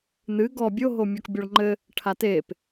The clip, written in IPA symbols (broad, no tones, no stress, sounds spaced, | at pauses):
n̪ ɨ ɡ ɔ bʲ o ɦ o mʲ ɔ k bʲ ɔ ɭ ŋ͡ǃ ɘ | ʈʰ a t e p